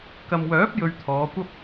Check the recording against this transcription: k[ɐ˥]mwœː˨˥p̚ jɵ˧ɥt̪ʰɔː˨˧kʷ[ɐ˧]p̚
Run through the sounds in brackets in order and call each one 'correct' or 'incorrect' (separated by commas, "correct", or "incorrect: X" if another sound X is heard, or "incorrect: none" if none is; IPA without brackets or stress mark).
incorrect: ɐ˨, incorrect: ɐ˥